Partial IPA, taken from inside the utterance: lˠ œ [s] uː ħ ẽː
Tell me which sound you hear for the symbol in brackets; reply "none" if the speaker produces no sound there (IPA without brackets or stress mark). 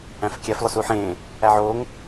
s